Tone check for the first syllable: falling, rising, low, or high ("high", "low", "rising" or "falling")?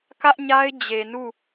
high